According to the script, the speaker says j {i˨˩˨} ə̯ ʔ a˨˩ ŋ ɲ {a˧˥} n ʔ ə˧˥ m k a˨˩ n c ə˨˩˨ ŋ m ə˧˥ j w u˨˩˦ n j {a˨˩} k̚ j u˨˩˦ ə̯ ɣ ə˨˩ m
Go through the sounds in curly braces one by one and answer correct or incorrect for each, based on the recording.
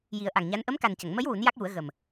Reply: incorrect: i˨˩˦, correct, incorrect: a˦˥

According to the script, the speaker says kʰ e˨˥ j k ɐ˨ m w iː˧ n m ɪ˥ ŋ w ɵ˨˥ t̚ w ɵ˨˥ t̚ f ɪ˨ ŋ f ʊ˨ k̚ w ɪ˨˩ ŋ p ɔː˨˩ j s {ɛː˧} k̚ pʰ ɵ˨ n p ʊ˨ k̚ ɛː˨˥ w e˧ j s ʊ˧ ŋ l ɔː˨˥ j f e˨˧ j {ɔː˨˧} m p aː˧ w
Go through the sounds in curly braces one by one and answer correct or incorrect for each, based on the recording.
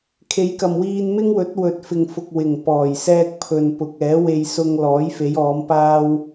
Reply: correct, correct

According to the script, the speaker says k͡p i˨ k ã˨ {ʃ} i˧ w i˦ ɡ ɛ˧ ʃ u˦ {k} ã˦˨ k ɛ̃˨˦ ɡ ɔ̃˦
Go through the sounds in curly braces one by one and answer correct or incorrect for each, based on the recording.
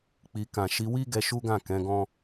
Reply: correct, incorrect: ɡ

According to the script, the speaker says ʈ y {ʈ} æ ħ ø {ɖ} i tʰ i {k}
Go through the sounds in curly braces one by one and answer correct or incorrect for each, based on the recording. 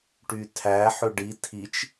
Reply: incorrect: tʰ, correct, incorrect: t͡ʃ

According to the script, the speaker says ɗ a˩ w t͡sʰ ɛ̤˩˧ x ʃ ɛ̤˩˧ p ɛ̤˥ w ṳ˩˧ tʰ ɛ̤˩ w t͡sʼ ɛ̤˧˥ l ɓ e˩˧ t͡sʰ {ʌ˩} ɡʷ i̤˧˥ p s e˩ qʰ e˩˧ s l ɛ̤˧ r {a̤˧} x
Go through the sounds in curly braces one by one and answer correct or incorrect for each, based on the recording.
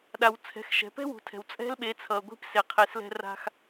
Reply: correct, correct

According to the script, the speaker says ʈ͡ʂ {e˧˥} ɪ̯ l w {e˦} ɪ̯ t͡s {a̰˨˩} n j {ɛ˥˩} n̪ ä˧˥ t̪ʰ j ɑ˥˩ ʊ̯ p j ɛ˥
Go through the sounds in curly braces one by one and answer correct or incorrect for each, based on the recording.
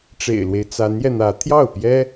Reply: incorrect: ḛ˨˩, correct, incorrect: a˧˥, incorrect: ɛ˧

